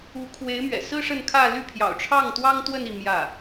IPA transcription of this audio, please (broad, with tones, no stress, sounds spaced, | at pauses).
u˧˥ kʰ w e˧˥ ɪ̯ m ɥ ɛ̰˨˩ s ɹ̩˥ ʂ ə˥˧ n kʰ ä˥˧ l y˥˩ pʰ j ɑ̰˨˩ ʊ̯ ʈ͡ʂʰ ɑ˥˩ ŋ t̪ w ɑ˥ ŋ t̪ w ə˥˧ n i˥˧ m j ä˥˩